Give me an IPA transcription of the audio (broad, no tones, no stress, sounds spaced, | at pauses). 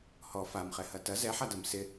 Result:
h ɔ f a m χ ɛ h ɐ t ɐ z ɛ ħ a d ɐ m s ɪ